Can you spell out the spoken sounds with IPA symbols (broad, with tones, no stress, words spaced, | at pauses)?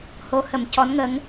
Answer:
ho˧˥hə˨˩m cɔ˧˥nŋə˧˥ŋ